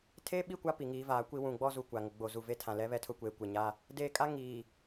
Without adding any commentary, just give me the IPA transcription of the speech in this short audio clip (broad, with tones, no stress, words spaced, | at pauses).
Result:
tʰeː˦ɓi˦˨kʷa˦ pi˨ŋiː˨˦vaː˨˦kʷi˦ wũ˨ɡ͡bɔ˦zu˨ kʷa˨ ŋʊ˨ ɡ͡bo˨ zu˨ve˦tʰã˨ lɛ˦βɛ˦tʰʊ˦kʷeː˨ kʷe˨ ɲa˦ | deː˨kʼa˦ ŋiː˨